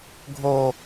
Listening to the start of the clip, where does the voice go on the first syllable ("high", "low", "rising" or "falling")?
high